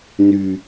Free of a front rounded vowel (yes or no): no